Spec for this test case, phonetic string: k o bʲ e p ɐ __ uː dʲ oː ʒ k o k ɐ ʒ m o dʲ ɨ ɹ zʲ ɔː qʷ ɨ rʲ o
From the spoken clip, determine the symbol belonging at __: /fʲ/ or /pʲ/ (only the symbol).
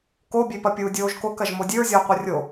pʲ